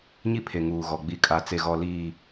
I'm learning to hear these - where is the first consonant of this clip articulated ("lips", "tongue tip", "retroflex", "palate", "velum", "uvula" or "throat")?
palate